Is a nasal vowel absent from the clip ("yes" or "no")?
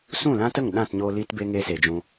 no